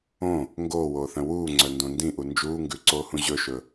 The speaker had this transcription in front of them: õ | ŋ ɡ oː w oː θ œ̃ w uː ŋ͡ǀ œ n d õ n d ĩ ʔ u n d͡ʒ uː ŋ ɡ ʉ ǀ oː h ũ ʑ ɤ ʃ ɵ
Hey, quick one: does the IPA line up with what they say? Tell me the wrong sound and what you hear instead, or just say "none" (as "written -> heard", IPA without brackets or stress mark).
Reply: ɤ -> ɵ